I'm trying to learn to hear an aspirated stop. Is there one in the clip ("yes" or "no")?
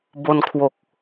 yes